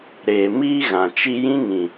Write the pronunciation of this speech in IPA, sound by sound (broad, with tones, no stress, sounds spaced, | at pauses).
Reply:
ɾ eː˨ m iː˦ ɣ ã˨ t͡ʃ i˧ j ĩ˦ ŋ ĩ˨